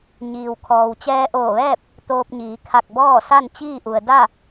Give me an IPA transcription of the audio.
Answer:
ɲ iː˩ w kʰ ɔː˩ w t͡ɕ ɛː˧ ʔ oː˧˩ ʋ ɛː˥˨ p̚ | t̪ oː˧ p̚ ɲ iː˩˧ kʰ a˧˩ k̚ b ɔː˥˨ s a˥˨ n t͡ɕ iː˥˨ ʔ u˩ ə̯ d a˥˨

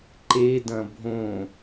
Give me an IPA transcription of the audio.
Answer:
ǃ e d ɐ̃ bʱ õ

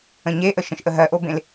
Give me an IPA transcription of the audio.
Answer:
ə̃ ɲ e ʔ ə ʃ ə̃ ʃ ʔ ə ɦ ɜ ʔ o b ẽ l

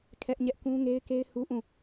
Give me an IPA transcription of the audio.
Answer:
kʰ ɛ˦ ʔ ɲ ɛ˦ ʔ k ũ˦ ŋ e˦ ɪ̯ k e˦ ɪ̯ h u˦ ʔ ũ˦˨

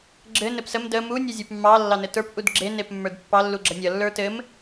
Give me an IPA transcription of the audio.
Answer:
ɡ͡ǁ ɘ n ɘ p s ə m d ə m u nʲ ɘ zʲ ə˞ p mː ɑ lː ɑ n ɘ t ə˞ p ʔ u d ɡ͡ǁ e n e p mː ə˞ d pː ɑ lː u ɡ͡ǁ ʌ nʲ ʌ lː ə˞ t ɘ m

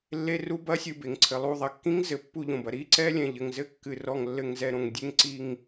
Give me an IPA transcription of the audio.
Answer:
lː e˧˥˧ r u˧˥˧ b ɐ˧˥˧ sʲ ɨ˧˩ b e˩ ŋ ǀʰ ɘ˩ lˠ u˧˩ ðˤ ɐ˩ kː ĩ˧˥˧ ŋ z ɘ˩ pː u˧˩ ʎ õ˩ b ɐ˩ ɾ i˧˥˧ ǀ ɛ˧˥˧ lʲ ɛ̃˩ ʎ ɘ˩ ŋ z ɘ˧˥˧ kː ɨ˩ r ɔ˧˩ ŋ lː ɘ˧˩ ŋ z ɛ˧˩ ɾ õ˩ ŋ dʲ e˧˥˧ ŋ ǀ i˧˩ ŋ

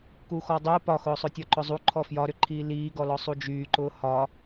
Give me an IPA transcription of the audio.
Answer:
k u x ɔ dˤ ʊː p ɒ x ʊː sˤ ʊ tʲ ɒ ǃ ʊ zˤ u ǃʰ ɔ f j ɒ ɾ ʏ ǃʰ iː l iː ɡ ɔ l ɔ sˤ u d͡ʒ yː ǃ ʊː h ɒ

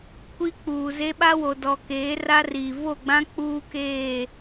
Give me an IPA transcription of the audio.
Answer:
kʷ i˦ k͡p uː˨ z e˦ ɓ a˦ w o˨ d ɔ˨ k eː˨˦ r a˦ r iː˨ v o˦˨ ɡ͡b ã˦ k͡p uː˦ k eː˦˨

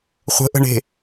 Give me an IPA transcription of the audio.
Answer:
χʷ ə̤ ʔ ə̤ ɳ e̤

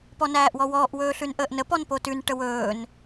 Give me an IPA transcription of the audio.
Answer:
p ɔ n æː ʔ w ɔ w ɔː ʔ w ɵː ɬ ʉ n ʔ əː ʔ n ə p ɔ n p o t ʉ n ʈ ə w ɵː n

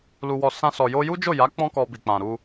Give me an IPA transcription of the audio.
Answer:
l u˧ w ɔ˧ s ã˦ s ɔ˧ j o˦ j u˦ d͡ʒ o˦˨ j a˨˦ k͡p ɔ̃˦ k ɔ˧ b i˨ k͡p ã˨ ɾ u˧

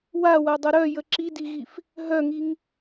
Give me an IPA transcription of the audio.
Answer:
w a w a dˤ ɐ ɾ œ j ə ǁ i d i ɣ i f | ɦ œ ŋ i ŋ

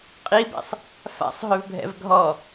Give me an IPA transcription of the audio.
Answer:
qʼ i b ɛ̰ sˤ | f a̰ sˤ ɦ ø v bʱ ɛ̰ v ɡʱ ɔ

